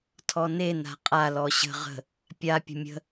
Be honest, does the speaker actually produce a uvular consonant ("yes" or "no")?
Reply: yes